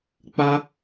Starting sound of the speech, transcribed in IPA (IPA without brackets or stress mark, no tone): k͡p